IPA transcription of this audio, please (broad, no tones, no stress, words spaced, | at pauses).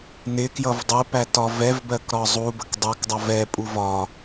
nɪ kjʌvdˤɪpæ tɒvɛvbɜk ɾɒzˤubək dˤʌkdˤʌv ɛpʼuv ɒ